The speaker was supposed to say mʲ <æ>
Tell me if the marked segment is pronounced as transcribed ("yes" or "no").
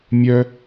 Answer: no